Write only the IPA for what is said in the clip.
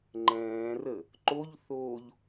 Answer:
ŋ͡ǃ ɛ̃ː r ə | ǃ o ʎ θ oː ʎ

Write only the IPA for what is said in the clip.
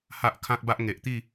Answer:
h a˦ ʔ kʰ ã˦ k̚ b a˦ ʔ ŋ e˨ ʔ t̪ i˥˧

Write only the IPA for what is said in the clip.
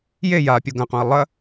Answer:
j e j a pʲ o ɡ ɐ̃ q õ ɐ̯ lˠ ɐ

